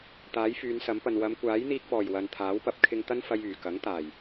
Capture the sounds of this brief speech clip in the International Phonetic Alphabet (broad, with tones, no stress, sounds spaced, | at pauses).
t̪ aː˨˥ j f yː˨˧ n s ɐ˨˥ m p ɐ˨ n w ɐ˨˧ m kʷ aː˨˥ j n̪ iː˧ k̚ p ɔː˨˩ j w ɐ˨ n t̪ʰ aː˨˥ w p ɐ˨˥ p̚ kʰ ɪ˧ ŋ t̪ ɐ˥ n f ɐ˧ j yː˨˩ k ɐ˨˥ ŋ t̪ aː˨˩ j